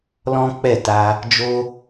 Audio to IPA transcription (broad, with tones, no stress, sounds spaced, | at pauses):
l ɔ̃˦ k͡p ɛ˦˨ t a˧ | d͡ʒ o˧